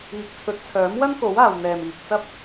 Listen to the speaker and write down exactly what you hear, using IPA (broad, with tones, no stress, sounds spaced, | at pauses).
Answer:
iː˨ k̚ t͡sʰ ɵ˨˥ t̚ t͡sʰ œː˨˥ m w ɐ˥ n k o˨˥ w aː˨ w n̪ ɛː˨ m iː˨ k̚ t͡s ɐ˥ p̚